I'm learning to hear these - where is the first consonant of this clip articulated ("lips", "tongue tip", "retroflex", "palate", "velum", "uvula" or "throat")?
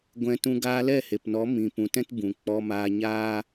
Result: velum